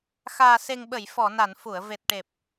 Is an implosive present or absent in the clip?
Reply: present